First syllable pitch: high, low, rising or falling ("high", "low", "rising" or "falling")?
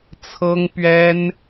high